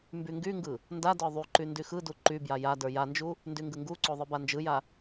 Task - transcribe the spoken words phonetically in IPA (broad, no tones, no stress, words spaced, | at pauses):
mbyŋɡyŋɡɯ | nda də˞ðˤyǃy ndyxɯdu ǃybja ja də˞jand͡ʒu | ndyŋɡɯŋɡuǀo ðˤɯband͡ʒɯja